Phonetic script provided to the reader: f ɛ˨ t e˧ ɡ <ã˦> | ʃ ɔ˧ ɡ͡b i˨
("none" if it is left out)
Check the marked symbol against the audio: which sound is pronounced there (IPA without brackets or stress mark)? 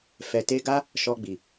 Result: a˦